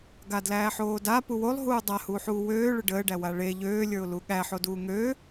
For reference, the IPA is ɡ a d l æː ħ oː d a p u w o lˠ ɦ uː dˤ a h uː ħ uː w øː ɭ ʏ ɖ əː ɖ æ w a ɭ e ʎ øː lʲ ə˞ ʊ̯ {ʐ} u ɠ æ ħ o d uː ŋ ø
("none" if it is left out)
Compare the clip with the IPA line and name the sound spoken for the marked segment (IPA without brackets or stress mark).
l